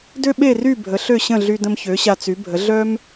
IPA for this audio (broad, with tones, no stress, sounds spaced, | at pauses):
d ø˥ ɓ e˥˩ r y˥˩ bʱ ə˩˥ ɬ ø˥˩ ɕ ə̃˥˩ ɮ y˧ d ə̃˧ m ç ø˩˥ ɕ a˧ t͡s y˩˥ bʱ ə˩˥ ɮ œ˥ m